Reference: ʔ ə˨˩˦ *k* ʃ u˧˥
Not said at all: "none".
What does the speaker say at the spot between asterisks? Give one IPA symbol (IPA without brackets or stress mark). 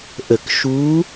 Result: k